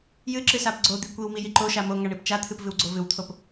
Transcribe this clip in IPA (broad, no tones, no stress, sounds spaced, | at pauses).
j ɨ ǁ ɨ s a p ɡ͡ǀ o d̪ i kʷ i w m i j i ǃ o ʃ a m o ŋ a ɳ i p t͡ʃ a t̪ʰ ɨ p v ɨ w ɡ͡ǀ o v ɨ w t̪ʰ o p